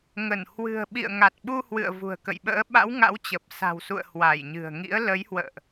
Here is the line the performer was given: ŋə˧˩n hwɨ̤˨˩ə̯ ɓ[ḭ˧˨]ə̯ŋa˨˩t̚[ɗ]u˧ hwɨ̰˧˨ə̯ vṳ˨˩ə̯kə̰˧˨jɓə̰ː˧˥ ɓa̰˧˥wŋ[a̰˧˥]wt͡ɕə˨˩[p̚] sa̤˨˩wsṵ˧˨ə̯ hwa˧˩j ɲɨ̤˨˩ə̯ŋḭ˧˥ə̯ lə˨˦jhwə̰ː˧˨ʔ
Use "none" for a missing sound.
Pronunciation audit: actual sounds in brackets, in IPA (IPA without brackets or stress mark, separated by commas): ḭ˧˨, ɓ, a̰˧˥, p̚